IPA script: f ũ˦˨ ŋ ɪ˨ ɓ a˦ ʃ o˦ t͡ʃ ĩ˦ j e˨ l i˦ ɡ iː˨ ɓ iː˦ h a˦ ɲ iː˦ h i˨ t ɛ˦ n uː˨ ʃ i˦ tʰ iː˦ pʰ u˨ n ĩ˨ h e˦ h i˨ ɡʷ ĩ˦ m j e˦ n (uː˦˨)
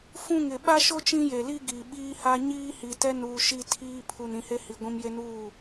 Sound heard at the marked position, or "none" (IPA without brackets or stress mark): uː˦˨